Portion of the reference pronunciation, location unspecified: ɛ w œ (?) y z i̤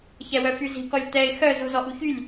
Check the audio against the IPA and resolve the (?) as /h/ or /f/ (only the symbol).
f